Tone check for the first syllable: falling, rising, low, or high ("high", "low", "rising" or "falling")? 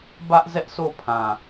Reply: high